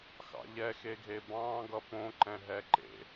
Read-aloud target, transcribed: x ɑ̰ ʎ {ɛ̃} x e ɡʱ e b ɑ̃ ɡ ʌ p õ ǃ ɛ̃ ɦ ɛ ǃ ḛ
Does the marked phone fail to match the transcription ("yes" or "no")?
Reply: yes